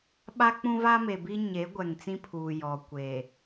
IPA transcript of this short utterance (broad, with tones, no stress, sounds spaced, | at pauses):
ɓ a˦ k͡p ũ˦ v a˦ m e˨ b i˦ ɲ e˨˦ ɡʷ ɛ˨ ŋ t͡s ĩ˦ pʰ uː˨ j ɔ˨ kʷ e˨